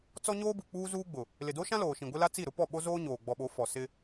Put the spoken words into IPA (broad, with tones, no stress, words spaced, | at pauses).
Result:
t͡sɔ˦ɲoː˦bu˨ k͡puː˦ zuː˦ɡ͡bʊ˨ | lɪ˨do˦ʃã˦ loː˨ʃĩ˨ ɡʷɪ˦la˦ t͡si˦˨ɾʊ˦pɔ˦˨ ɓo˦zoː˦ ɲoː˨ ɡ͡bɔ˨ɓo˨˦ fɔ˨ sɪ˦